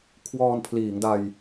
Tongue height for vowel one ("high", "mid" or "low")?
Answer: mid